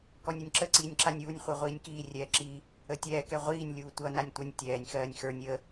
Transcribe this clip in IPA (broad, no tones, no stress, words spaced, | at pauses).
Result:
kɔnʲʌnʲǁə ǀiːnʲǁanʲuːnʲ χʷə˞ʁʷiːnʲkiː rʲɛːǁi | ətʲɛː kɛʁʷiːnʲ lʲuːtʷʌ nanʲtʷʌnʲ tʲɛːnʲ xɜːnʲxə˞nʲ ə